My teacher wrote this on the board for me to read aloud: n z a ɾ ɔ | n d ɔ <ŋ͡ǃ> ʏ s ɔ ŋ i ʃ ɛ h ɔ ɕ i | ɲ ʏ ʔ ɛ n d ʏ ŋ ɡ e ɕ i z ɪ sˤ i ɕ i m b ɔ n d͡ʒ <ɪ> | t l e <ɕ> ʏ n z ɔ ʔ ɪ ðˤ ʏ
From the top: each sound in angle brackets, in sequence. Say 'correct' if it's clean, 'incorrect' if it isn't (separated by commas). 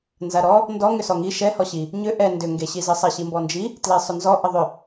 incorrect, incorrect, incorrect